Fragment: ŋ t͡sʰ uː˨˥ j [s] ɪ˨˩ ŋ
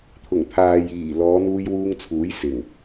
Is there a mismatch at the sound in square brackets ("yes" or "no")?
no